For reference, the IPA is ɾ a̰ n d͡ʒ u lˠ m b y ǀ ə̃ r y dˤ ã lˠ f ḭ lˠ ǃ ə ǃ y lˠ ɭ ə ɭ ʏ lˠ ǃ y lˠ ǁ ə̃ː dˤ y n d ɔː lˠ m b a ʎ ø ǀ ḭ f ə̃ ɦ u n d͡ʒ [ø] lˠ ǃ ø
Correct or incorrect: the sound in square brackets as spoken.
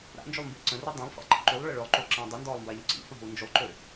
incorrect: y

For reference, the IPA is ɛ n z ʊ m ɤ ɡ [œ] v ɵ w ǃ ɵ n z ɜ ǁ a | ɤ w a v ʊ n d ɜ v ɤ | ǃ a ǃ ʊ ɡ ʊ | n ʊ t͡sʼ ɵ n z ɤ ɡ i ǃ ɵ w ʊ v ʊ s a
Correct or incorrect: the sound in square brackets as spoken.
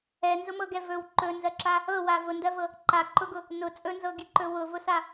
incorrect: ɛ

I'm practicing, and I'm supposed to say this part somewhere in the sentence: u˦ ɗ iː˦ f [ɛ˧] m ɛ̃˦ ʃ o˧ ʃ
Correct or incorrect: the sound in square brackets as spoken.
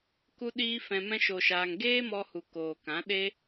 incorrect: ɛ̃˧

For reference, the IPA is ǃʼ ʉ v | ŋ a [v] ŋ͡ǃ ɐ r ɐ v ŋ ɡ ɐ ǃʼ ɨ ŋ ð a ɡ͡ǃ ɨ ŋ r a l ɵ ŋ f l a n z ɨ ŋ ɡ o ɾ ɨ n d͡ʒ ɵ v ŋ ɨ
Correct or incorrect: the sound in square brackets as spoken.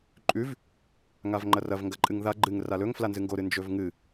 correct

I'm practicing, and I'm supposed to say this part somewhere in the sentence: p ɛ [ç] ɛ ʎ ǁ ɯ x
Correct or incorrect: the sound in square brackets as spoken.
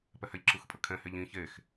incorrect: h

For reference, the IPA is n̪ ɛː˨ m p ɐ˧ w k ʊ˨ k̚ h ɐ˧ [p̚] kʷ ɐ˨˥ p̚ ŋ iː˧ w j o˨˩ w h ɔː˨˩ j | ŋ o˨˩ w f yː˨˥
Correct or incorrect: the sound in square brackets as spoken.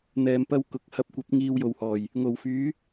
correct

